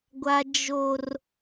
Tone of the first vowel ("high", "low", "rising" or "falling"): high